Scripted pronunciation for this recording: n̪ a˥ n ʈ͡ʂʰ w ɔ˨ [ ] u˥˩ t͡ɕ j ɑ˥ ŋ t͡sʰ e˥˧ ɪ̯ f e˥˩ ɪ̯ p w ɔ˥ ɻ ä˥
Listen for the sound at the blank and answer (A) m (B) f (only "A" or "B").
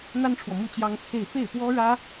A